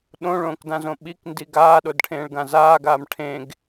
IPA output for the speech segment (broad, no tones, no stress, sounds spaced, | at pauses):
ɗ õ ɭ õː k d ã z õ ɓ i k n d i ɡ aː ɗ o d ʈʰ ẽː ɭ ɡ ã z aː ɡ aː m ʈʰ ẽ ɡ